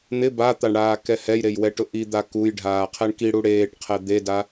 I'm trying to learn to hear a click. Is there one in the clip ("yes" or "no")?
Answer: no